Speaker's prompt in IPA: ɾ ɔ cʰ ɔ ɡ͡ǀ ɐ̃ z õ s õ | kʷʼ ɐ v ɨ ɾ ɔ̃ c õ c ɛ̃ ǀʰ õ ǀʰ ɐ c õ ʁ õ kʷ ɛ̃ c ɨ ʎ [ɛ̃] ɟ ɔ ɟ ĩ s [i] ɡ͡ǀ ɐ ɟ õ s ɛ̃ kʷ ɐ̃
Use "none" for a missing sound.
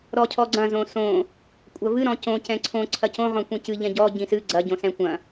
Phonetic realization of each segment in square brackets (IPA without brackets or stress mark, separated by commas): ɛ̃, ɨ